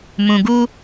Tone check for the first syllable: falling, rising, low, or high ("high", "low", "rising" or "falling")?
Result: low